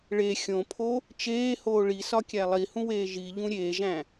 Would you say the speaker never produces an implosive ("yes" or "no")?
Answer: yes